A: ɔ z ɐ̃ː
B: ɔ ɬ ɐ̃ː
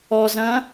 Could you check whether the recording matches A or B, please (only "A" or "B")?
A